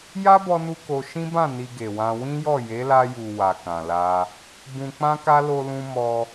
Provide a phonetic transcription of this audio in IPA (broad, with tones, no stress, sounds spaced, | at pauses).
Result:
j a˦ b ɔ˧ n u˧ k o˧ ʃ ĩ˦ b ã˦˨ n i˧ ɡ e˨ w ã˧ w ĩ˦ j ɔ˦˨ j e˨˦ l a˧ j u˨ w a˨ k ã˨ l a˧ | b ũ˧ k͡p ã˦ k a˦ l o˧ l ũ˧ m ɔ˧